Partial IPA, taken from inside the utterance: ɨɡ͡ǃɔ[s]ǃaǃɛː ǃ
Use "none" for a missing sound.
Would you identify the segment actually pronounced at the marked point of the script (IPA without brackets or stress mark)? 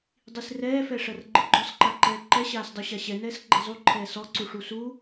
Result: s